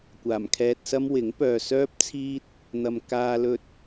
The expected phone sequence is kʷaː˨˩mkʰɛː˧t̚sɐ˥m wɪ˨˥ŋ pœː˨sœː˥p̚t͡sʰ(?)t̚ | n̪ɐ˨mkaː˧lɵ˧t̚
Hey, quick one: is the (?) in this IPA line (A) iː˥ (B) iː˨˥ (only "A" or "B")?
A